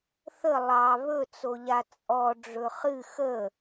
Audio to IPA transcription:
θə lˠɑ βɵt͡soʎa t͡sʼɔ ɖ͡ʐɵχɨ xə

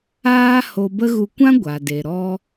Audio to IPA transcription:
aː˦ ho˧bə˦ ɣu˧kʷã˦ ɡʷa˨de˨ ɾɔ˧

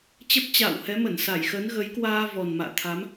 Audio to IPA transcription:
t͡ɕə˦˥p̚t͡ɕa̰ː˧˨whɛ˨˦ mə˧˩nsa˧˩jxə˨˦nɣə˨˦j kwaː˧ vɔ˨˩nma̰ː˧˨t̪ʰa˨˦m

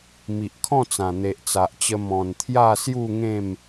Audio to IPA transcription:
mi˨ʔkʰɔ̃˥˧t͡sã˨˩ n̪e˨ʔt͡sa˨ʔt͡ɕə˧ mɔ̃˨˩n t̪ʰja˥˧sju˥˧ŋẽ˥˧m

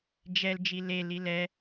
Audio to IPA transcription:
d͡ʒɛl d͡ʒile lilɛ

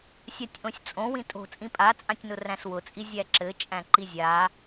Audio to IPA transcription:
sʲatʲʔõsʲt͡sʼõ wĩtʼo̤ t͡sʼĩpʼat͡sʼãtʲnʊ ræ̃swʊt͡sʼi zʲæǁɘ t͡ʃʼæ̃ǃizʲa

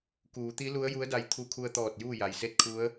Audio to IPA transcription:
kuː˩˧t̪i˧˥ lu˧˥ə̯ju˧˥ə̯da˧j t̪ʰu˧kʰu˧ə̯t̪ɔː˧˩t̚ juː˥˨ja˩jse˥˨t̚ kʰu˧˥ə̯

